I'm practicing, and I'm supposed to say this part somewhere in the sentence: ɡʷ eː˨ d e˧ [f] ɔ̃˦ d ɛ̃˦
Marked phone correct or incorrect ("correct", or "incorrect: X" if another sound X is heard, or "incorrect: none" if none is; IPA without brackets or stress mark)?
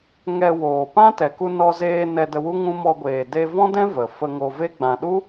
incorrect: v